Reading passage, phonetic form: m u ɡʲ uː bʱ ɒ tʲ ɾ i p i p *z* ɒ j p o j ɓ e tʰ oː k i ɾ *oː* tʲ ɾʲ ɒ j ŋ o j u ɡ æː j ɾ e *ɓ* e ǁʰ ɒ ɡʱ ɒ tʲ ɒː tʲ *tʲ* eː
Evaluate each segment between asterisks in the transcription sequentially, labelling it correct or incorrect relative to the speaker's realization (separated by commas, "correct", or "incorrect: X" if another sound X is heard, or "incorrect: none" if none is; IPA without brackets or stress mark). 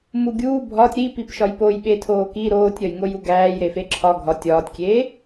incorrect: ʃ, correct, incorrect: f, incorrect: kʲ